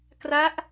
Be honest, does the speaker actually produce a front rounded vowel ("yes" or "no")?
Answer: no